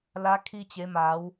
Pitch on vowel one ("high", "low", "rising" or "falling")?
rising